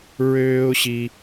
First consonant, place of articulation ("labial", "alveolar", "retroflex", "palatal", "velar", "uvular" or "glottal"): alveolar